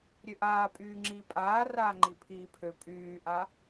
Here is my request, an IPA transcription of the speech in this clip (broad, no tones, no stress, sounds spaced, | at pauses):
ɾʲ ø ʔ aː pʼ yː ŋ͡ǁ iː pʼ aː r aː ŋ͡ǃ i pʰ iː pʰ ø pʼ yː ʔ a